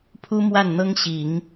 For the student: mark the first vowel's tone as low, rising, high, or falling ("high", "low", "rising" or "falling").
high